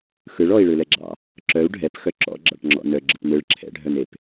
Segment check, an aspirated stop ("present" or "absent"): present